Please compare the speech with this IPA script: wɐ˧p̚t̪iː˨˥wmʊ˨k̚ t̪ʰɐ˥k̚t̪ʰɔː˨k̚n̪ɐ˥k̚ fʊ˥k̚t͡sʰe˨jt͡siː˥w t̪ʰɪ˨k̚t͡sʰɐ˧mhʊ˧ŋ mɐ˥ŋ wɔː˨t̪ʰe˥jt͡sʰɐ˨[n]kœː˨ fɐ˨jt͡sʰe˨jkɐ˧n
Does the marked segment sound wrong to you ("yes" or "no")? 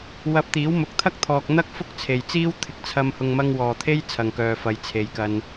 yes